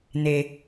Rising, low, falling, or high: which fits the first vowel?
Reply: low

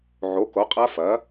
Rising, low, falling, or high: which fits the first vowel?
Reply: rising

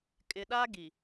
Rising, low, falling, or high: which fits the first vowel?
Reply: high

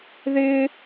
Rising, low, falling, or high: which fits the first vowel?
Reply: high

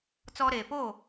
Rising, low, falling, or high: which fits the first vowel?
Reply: high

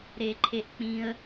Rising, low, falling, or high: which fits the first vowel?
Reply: low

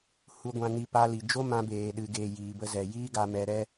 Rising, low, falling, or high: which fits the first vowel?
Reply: low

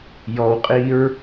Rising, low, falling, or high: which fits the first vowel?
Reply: low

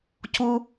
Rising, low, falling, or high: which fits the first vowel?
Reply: high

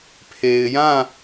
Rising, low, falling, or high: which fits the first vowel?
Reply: low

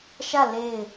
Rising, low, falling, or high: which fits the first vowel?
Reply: falling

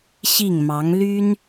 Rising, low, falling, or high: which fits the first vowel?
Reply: falling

